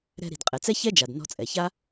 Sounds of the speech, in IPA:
ɾɛ̤˧ɾi̤˩d qʼɛ˩t͡sɛ˥çɛ˥d͡ʒa˩d nɔ̤˧t͡sʼɛ˩ça˥

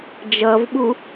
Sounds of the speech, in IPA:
d͡ʒʌvɓu

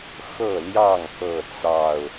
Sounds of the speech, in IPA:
xɤ˥˨ljɑ˥˨ŋ kɤ˥˨t͡sɑ˥˨ʊ̯

